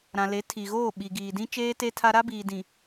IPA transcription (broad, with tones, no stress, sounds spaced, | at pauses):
ɾ ã˨ l e˨˦ tʰ i˨ ɣ oː˦˨ ɓ i˨ ɡ iː˨ d ĩ˦ t͡ʃ eː˦ t e˦ tʰ a˦ ɾ a˦ b iː˨ d ĩ˨